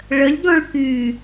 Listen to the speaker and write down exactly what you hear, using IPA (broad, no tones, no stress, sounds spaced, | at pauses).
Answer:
ɭ ə lʲ ɡ ɔ̃ ɭ k y